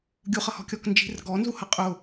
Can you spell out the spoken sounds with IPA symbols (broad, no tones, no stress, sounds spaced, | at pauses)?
ɡʲ u χ ʌ h ɔ̤ kʲ ɔ k n d͡ʒ i̤ r ɡ ɔ n z u h ʌ qʼ ʊ